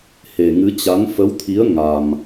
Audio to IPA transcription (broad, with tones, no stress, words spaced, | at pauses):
he˨˩ŋɨ˨˦t͡ɕa˨˦n fə˨˦wt̪ʰi˨˦ə̯ ŋa˧m